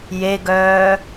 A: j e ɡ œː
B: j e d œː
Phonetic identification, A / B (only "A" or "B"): A